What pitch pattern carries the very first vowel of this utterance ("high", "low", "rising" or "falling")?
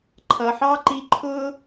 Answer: low